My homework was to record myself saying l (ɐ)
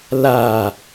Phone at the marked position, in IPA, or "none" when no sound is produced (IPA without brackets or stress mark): a